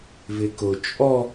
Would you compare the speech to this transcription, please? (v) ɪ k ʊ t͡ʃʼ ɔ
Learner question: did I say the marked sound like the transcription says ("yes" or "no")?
yes